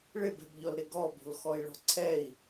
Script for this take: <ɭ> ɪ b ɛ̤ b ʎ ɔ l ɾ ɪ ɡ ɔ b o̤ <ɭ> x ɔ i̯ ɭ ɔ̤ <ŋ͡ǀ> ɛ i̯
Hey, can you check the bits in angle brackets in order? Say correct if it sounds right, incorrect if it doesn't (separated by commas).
correct, incorrect, incorrect